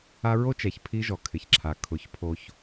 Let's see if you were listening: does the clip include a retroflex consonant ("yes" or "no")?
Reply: no